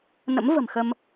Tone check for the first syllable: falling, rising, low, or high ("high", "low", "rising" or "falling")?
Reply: rising